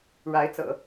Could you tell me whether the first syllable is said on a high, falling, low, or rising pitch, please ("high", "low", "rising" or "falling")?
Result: rising